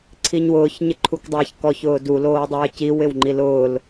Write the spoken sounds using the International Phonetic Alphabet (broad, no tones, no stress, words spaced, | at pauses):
ǀʰiɲwʊːç ɲɪǃʰukdˤaːçkɔ çʊːdu loːdˤɪːciw ɪwŋ͡ǃilʊːl